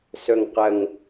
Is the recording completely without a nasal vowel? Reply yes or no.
yes